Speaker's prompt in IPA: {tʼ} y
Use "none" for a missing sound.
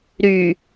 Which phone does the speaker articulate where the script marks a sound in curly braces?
ɾ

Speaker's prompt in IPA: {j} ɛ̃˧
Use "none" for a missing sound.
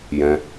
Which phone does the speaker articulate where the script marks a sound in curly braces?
j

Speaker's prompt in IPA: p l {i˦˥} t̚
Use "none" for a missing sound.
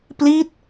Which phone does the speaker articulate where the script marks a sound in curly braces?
i˦˥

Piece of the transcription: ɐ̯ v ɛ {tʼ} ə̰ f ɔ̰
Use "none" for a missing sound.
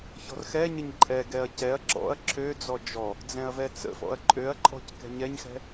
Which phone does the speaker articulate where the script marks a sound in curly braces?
t͡s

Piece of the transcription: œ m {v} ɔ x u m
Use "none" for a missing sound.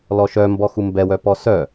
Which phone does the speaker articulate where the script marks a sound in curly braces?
b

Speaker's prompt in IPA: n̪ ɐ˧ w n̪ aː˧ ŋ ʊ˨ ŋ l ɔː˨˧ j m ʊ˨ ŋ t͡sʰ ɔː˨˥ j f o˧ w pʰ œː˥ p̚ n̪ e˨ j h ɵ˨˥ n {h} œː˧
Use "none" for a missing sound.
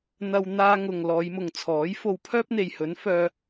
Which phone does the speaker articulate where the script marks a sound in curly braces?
f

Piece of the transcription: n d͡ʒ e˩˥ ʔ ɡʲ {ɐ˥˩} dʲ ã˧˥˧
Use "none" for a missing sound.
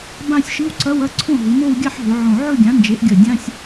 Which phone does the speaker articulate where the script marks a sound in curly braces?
ɐ˨˩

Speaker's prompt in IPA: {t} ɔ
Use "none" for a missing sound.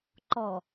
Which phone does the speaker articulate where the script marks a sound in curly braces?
ǃ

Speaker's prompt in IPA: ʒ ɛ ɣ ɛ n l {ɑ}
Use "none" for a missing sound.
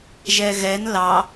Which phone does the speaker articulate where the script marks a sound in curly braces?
ɑ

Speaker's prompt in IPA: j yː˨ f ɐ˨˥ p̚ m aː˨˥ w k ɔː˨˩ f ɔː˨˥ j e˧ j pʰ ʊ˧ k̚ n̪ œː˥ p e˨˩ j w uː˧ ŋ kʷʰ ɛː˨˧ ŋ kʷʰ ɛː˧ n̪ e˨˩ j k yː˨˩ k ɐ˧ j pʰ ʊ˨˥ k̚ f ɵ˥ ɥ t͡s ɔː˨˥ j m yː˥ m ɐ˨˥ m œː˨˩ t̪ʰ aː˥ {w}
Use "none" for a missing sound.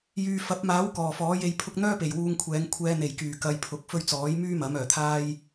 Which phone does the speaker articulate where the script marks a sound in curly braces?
j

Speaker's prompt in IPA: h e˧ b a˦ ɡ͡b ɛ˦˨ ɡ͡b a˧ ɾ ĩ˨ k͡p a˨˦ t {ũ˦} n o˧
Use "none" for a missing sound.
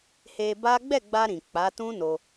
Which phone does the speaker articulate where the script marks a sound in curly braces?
ũ˦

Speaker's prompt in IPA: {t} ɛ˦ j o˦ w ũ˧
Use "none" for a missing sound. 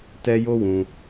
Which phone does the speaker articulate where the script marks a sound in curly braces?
t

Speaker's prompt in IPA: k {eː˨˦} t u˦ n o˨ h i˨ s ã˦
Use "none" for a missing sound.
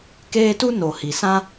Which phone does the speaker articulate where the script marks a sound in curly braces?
eː˦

